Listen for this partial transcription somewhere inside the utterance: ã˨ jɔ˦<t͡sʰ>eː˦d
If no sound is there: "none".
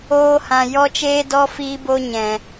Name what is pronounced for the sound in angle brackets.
t͡ʃ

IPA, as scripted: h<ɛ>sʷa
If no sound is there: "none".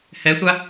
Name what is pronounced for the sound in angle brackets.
ɛ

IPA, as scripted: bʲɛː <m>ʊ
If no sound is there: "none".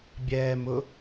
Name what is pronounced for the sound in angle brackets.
m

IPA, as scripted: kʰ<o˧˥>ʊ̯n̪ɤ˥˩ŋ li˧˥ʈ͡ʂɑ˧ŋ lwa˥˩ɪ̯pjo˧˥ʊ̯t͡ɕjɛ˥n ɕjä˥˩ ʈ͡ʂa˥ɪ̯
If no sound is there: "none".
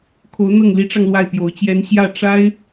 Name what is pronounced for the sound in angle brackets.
o˧˥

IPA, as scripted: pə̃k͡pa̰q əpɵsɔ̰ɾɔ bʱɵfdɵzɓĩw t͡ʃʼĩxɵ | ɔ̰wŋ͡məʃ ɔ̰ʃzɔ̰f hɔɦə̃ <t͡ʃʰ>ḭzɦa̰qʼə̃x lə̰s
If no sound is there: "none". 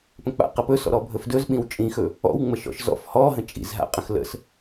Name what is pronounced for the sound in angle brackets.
t͡ʃʼ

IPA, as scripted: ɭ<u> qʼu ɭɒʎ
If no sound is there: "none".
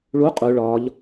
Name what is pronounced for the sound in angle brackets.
u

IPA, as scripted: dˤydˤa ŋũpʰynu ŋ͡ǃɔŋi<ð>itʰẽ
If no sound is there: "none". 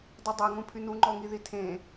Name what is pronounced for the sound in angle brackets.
ð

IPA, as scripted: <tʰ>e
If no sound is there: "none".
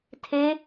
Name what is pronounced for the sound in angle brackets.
tʰ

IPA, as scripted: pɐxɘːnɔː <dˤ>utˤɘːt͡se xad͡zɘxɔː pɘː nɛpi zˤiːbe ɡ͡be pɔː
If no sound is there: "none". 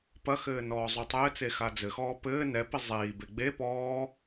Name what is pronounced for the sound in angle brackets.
zˤ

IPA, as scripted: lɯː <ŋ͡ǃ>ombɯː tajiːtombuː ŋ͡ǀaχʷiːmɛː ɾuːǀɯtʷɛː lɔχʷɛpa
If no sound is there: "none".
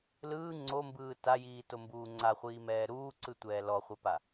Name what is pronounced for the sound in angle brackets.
ŋ͡ǀ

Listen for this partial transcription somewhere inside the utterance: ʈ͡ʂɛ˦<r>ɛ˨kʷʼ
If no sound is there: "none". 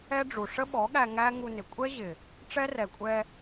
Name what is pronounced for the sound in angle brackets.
r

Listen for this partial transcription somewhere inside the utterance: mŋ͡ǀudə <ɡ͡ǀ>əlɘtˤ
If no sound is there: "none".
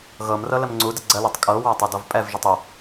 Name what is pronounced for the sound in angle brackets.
ɡ͡ǀ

